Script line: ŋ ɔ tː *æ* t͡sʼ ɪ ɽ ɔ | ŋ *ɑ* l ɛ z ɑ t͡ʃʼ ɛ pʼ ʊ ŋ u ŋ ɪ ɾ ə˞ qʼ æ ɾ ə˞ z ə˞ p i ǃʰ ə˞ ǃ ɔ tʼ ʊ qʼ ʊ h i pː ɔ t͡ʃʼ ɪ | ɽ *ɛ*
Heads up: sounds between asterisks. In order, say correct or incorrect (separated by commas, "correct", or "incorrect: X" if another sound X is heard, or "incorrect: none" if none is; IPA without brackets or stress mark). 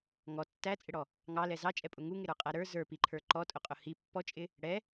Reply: correct, correct, correct